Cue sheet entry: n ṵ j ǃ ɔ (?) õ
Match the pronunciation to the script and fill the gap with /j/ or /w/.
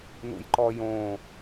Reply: j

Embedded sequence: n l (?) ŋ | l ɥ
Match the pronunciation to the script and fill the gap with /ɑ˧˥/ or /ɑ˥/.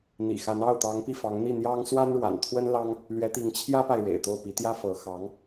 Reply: ɑ˥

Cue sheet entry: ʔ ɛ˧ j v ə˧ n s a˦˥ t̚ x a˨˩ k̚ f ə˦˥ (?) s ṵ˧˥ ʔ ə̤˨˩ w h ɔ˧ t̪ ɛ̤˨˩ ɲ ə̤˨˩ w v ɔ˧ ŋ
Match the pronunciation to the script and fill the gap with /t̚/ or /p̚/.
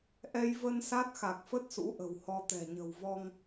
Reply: t̚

